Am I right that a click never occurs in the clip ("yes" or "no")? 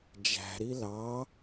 yes